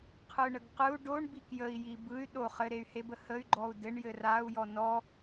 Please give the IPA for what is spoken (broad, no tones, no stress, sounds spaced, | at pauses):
qʰ ɯ ɳ ə ɡ q ɯ u̯ ɖ o ɳ b i k j ə i̯ j i b ɯ y̯ ɗ o χ ɘ ɾ e y̯ h e b ə h ə y̯ ɡ͡ǃ ɔ u̯ d ɘ ɳ j ɘ r a u̯ j ɔ n ɔ